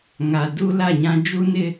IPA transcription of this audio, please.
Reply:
ŋ a˨ d u˦ l a˦˨ ɲ ã˦ d͡ʒ u˦ n ɪ˦

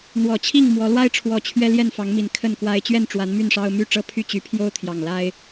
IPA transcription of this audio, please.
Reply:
n̪ w ɔ˨˩ t͡ɕʰ i˥˨ ŋ m w ɔ˨˦ l w a˦ ɪ̯ ʈ͡ʂʰ w ɔ˨˩ t͡ɕʰ ɥ ɛ˦ l j ɛ˥˨ n f ɑ˨˦ ŋ m i˨˦ n kʰ ə˥˨ n k w a˦ ɪ̯ t͡ɕ ɥ ɛ˥˨ n ʈ͡ʂ w a˨˦ n m y˥˨ n ʂ ɑ˦ ʊ̯ m y˥˨ ʈ͡ʂ ɤ˦ pʰ y˥˨ t͡ɕ y˨˦ pʰ j o˦ ʊ̯ t̪ʰ j ɑ˨˩ ŋ l a˦ ɪ̯

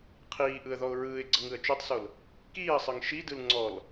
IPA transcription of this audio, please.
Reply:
qʰ iː ʔ ɯ ə̯ ð ɔ ʊ̯ ɹ ɯː ɪ̯ ɡ͡ǀ ɤ ŋ ɯ ə̯ t͡ʃ o tˤ s o l | k iː ə̯ sˤ ɤ ŋ ʃ i d ɯ l ŋ͡ǀ ɔ l

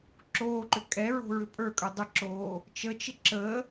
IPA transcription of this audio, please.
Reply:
ǁ oː ǃ ʏ kʼ ɛ ɹ o̤ ɹ ʏ pʼ ə˞ kʼ ə˞ dˤ ə ǁ oː | t͡ʃ ə t͡ʃ ɪ ǁ ə

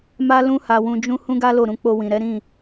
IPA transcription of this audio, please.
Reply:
m a˦ l ũ˦ h a˧ w ũ˧ d͡ʒ ũ˦ h ũ˦ ɡ a˦ l o˦˨ ɾ ũ˧ k͡p o˧ w ĩ˨ ɾ ɛ˨˦ ɾ ĩ˦˨

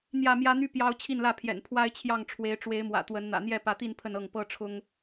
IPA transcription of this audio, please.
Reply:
n̪ j ä˥˨ m j ä˦ n̪ y˦ p j ɑ˦ ʊ̯ t͡ɕʰ i˥˨ n l ä˥˨ pʰ j ɛ̰˨˩ n pʰ w a˦ ɪ̯ t͡ɕʰ j ɑ˥˨ ŋ ʈ͡ʂʰ w e˨˦ ɪ̯ ʈ͡ʂ w e˨˦ ɪ̯ m w ä̰˨˩ t̪ w ə˨˦ n n̪ ä̰˨˩ n̪ j ɛ˥˨ p ä˨˦ t̪ i˥˨ n pʰ ə˥˨ n ɤ˥˨ ŋ p ɤ˥˨ ʈ͡ʂʰ ʊ˦ ŋ

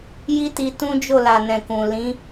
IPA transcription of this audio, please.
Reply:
j i˦ t i˧ t ũ˦ d͡ʒ o˦˨ l a˨ n ɛ̃˨ k ũ˨ l ĩ˨˦

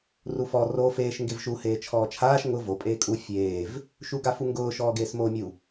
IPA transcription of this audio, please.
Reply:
r u f ɔ r o f eː ʃ ŋ ɡ e v ʃ u h eː t͡ʃʰ ɔː t͡ʃʰ aː ʃ ŋ ʊ v o pʼ eː kʼ u fʲ eː v | ʃ u ɡ a f u ŋ ɡ ʊː ʃ ɔː ɡ eː s m oː mʲ u

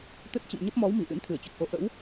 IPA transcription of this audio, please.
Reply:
t̪ ə˦˥ t̚ t͡ɕ ə̰˧˨ m ɲ ə˦˥ p̚ m ɔ˨˦ w m i˧˩ ʔ ɨ̰˧˥ n t̪ʰ ɨ˧˩ ə̯ t͡ɕ ɔ˨˩ k̚ ʔ o˧ ʔ ə̰˧˥ w

